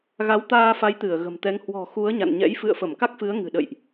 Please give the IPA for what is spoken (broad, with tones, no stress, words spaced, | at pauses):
ɣa˨˦wt̪aː˧fa˨˦j t̪ɨ˧˩ə̯ɣə̤˨˩mt̪ɛ˨˦ŋ hwɔ̤˨˩ xu˨˦ə̯ɲa̰˧˨nɲɛ̰˧˥j fɨ̰˧˨ə̯fə˧˩mka˦˥k̚fɨ˨˦ə̯ ŋɨ̤˨˩ɗə̰˧˨jʔ